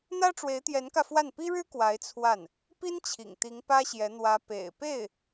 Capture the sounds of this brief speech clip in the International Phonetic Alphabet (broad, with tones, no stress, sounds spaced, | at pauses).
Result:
n̪ ä˥ ʈ͡ʂ w e˧˥ ɪ̯ t̪ j ɛ˧˥ n k ä˧ f w a˥˩ n p i˥ ɻ ɻ̩˥ k w a˧˥ ɪ̯ t͡sʰ w a˥˩ n | p i˥ n t͡ɕʰ ḭ˨˩ ŋ t̪ i˧˥ ŋ p ä˥ ɕ j ɛ˧˥ n̪ w ä˧˥ p ḛ˨˩ ɪ̯ p e˥˩ ɪ̯